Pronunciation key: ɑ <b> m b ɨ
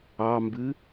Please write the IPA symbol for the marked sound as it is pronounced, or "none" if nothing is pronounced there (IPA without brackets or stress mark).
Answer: none